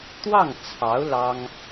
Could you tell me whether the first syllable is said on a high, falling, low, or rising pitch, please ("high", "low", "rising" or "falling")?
falling